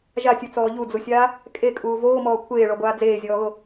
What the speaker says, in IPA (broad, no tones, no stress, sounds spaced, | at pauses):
ʒ a tʲ u t͡s ɔː ʎ u d͡z u sʲ aː | kʼ e kʼ uː v oː m ɔː kʷʰ eː ɭ ɔ ɡʷ aː d͡z eː zʲ ɔː ɣ o